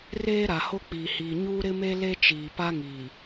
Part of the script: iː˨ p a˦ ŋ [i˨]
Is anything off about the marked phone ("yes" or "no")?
yes